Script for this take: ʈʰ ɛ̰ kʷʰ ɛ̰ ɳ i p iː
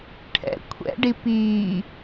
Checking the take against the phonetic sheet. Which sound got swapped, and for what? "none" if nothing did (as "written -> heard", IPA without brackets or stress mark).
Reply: ɳ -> ɖ